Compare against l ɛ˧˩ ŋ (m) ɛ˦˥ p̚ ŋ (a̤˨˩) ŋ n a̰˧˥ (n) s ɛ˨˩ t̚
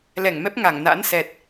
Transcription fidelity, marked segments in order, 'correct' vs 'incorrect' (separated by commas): correct, incorrect, correct